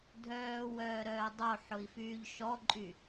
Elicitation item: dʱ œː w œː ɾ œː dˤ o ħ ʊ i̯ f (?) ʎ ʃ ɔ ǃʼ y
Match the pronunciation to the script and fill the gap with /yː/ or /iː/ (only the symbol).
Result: yː